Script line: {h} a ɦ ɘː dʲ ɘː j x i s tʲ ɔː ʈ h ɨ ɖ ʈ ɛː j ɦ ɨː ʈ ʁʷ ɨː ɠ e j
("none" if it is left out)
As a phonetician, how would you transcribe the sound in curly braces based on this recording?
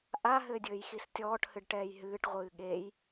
ʔ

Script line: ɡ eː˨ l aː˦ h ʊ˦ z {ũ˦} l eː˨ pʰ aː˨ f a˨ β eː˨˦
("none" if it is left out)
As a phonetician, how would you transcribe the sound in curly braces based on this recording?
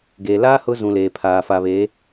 ũ˨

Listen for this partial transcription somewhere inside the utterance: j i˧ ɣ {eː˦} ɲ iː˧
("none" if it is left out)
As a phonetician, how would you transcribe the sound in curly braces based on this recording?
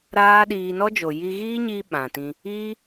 iː˦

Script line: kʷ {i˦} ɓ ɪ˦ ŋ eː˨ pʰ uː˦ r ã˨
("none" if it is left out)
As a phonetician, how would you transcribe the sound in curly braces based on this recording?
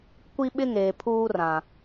i˦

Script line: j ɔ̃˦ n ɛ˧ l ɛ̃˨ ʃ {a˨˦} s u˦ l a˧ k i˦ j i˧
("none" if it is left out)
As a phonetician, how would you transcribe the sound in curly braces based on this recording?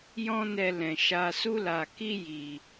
a˧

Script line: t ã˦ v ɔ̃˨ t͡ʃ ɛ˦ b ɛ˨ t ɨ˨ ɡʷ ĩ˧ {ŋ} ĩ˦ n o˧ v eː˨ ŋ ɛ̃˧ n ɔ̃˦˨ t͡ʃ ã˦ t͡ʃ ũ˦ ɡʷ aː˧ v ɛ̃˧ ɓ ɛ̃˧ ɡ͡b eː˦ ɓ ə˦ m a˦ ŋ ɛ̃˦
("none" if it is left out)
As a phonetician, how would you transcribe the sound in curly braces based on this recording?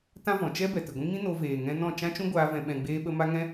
ŋ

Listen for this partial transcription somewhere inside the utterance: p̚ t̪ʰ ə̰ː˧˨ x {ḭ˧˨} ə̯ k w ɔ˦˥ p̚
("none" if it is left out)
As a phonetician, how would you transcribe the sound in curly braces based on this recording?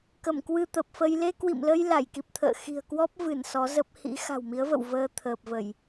i̤˨˩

